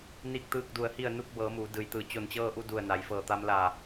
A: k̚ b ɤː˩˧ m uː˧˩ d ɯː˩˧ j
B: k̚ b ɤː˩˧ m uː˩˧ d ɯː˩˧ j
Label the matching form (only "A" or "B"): B